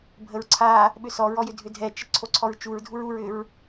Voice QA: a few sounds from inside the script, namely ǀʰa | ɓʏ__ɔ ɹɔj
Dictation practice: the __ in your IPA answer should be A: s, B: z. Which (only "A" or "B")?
A